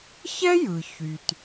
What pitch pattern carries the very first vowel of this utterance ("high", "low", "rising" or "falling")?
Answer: high